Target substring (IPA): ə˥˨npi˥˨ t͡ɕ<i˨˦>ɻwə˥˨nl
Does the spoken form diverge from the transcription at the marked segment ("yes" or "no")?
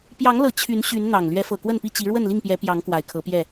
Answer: no